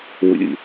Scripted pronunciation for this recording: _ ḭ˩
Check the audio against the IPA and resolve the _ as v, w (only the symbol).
w